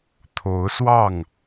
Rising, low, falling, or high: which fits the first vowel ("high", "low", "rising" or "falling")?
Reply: rising